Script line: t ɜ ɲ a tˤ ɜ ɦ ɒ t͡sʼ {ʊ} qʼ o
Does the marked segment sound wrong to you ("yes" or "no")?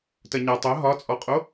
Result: yes